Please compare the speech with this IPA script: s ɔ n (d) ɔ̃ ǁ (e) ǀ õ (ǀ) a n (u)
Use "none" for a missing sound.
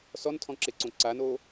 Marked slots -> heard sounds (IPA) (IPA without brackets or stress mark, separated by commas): tʰ, e, ǀ, o